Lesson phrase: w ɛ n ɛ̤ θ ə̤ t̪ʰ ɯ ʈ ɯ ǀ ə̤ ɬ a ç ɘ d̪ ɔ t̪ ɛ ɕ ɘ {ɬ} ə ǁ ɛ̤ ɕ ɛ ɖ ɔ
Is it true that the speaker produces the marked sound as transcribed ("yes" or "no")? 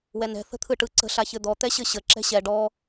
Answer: no